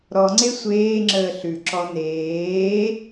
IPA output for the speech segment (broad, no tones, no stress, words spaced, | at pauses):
ɾɔŋ͡ǀe sʷeːŋ͡ǁəː ɬʉǁɔ neː